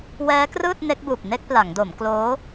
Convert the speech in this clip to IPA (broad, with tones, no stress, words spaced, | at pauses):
wɛː˦˥krɯː˥˩t̚ ne˦˥k̚buː˨˩p̚ ne˥˩k̚pla˩˦ŋdo˩˦m kloː˦˥